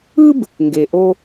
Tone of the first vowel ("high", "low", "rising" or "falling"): high